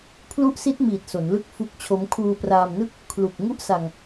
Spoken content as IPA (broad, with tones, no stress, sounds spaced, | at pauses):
pʰ l u˦˥ ʔ s i˦˥ t̚ m iː˨˩ t̚ s o˩˦ n l ɯ˥˩ k̚ f u˦˥ k̚ t͡ɕʰ o˦˥ m kʰ uː˧ p r aː˧ m n ɯ˥˩ k̚ | kʰ l u˨˩ k̚ ŋ u˥˩ ʔ s a˧ ŋ